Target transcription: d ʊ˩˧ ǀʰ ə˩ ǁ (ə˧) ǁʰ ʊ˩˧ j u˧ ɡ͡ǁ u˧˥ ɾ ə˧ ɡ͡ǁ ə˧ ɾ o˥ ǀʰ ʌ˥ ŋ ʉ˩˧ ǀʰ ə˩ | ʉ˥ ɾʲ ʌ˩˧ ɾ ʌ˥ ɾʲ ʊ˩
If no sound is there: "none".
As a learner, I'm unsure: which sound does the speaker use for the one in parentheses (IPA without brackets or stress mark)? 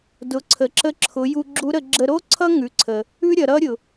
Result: ə˧